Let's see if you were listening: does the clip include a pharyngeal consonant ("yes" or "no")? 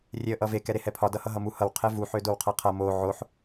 yes